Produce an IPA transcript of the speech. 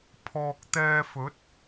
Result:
pʰ ɔː˨ k̚ t̪ ɛː˧ f ɵ˨˥ t̚

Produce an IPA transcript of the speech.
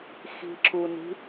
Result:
x i̤ ǁ u n i̤

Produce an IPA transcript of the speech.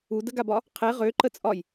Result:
u d ə ɡ a b ɒ | qʰ e ʁ ø ǃ ə t͡sʼ ɒ j

